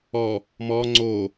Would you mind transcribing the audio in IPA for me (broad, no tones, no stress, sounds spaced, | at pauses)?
ɔ | m ɔ ŋ͡ǀ o